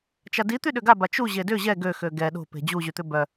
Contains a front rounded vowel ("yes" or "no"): yes